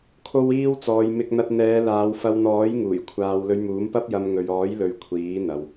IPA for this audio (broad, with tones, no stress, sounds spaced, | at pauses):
kʰ o˧ w iː˧ w t͡s ɔː˨ j m ɪ˧ k̚ n̪ ɐ˧ t̚ n̪ ɛː˨˧ l aː˨˧ w f ɐ˧ w n̪ ɔː˨˥ j ŋ uː˨˩ j kʷʰ aː˨ w l ɵ˨˧ ɥ m uː˨˥ m p ɐ˥ p̚ j ɐ˧ m ŋ ɵ˨ ɥ ɔː˨˥ j l ɵ˨ ɥ kʷʰ iː˨˥ n̪ ɐ˨ w